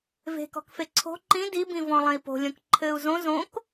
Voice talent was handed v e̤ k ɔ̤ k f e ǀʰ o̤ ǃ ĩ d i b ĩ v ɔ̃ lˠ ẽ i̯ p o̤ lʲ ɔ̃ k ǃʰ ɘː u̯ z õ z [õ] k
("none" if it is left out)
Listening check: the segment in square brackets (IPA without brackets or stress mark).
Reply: õ